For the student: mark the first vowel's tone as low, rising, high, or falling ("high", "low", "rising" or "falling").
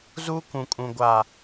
high